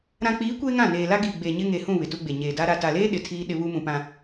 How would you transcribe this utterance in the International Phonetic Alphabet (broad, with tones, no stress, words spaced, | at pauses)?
ɾã˨k͡piː˨˦ kʷeː˦ŋã˦˨ neː˨la˦ ɡiː˨ɡ͡beː˨ɲɪ˦ ŋe˨hũ˦˨ βɪ˨tu˦ɡ͡be˨ ɲeː˨da˦ ɾa˨ta˨leː˦ ɗɪ˨tʰiː˦ ɗɪ˦βu˦mũ˨pã˨